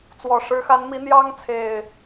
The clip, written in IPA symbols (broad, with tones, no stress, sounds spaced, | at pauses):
t͡s w ɔ˨˩ ʂ ɻ̩˨˦ x a˨˦ n m i˨˦ n̪ j ɑ˦ ŋ t͡sʰ e˨˩ ɪ̯